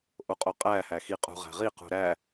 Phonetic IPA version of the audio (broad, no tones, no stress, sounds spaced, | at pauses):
ʔ o qʼ o qʼ æ h æ x i qʼ ṳ ʁ æ̤ ʁ i q ṳ ɾ æ